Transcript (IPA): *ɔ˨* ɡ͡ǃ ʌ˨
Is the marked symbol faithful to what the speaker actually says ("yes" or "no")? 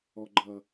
yes